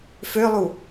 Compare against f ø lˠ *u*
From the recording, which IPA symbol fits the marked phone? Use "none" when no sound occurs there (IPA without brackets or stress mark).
u